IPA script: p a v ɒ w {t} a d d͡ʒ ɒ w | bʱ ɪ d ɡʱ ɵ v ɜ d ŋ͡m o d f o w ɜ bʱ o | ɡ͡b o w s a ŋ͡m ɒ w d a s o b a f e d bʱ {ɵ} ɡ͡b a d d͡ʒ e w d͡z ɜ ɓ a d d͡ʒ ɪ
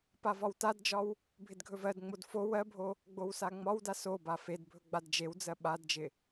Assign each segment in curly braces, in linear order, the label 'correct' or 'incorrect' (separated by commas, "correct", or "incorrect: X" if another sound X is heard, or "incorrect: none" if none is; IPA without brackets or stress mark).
correct, correct